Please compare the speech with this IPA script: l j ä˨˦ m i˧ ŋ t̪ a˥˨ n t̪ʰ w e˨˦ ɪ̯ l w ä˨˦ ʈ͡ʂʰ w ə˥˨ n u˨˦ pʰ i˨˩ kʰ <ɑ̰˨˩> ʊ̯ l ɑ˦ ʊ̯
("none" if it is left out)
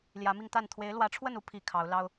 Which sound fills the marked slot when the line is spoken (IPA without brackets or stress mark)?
ɑ˨˦